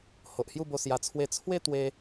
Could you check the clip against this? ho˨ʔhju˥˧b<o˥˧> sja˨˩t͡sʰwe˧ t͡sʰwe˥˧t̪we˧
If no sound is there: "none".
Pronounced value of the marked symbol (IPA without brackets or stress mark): o˧